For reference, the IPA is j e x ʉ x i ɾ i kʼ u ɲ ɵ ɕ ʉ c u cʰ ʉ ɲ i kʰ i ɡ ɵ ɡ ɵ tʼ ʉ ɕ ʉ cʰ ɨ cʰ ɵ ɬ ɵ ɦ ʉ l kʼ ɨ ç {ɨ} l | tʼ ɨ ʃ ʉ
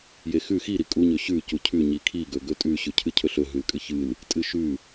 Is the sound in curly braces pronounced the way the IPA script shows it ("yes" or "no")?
yes